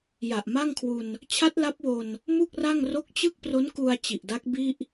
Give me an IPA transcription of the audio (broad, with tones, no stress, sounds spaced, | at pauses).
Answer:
j a˨˩ ʔ m a˥˩ ŋ kʰ w u˧ n | t͡ɕʰ a˦˥ t̚ l a˦˥ p̚ w o˧ n | m u˥˩ k̚ r a˥˩ ŋ r o˦˥ k̚ t͡ɕ ɯ˥˩ k̚ p r o˦˥ n k u˧ a̯ t͡ɕ i˨˩ ʔ d a˦˥ k̚ b i˥˩ ʔ